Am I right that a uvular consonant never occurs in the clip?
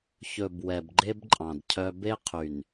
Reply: no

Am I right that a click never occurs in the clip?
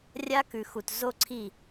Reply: no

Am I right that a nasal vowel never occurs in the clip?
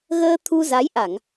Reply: yes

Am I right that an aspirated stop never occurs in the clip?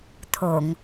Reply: no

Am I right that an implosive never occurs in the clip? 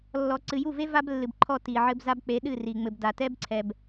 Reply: no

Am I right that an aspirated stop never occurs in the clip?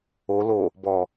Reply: yes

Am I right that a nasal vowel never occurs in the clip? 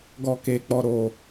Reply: yes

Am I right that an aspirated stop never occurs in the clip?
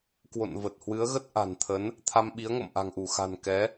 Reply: no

